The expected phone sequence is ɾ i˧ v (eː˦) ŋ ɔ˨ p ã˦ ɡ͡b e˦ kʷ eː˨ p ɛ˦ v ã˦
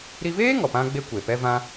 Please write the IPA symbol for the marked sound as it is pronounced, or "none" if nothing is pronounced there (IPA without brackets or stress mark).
eː˦